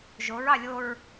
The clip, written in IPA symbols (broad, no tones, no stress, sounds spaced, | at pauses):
ʒ o ɹ ɑ lʲ o ɹ